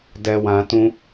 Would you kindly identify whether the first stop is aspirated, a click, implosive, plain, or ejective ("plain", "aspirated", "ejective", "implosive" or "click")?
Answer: plain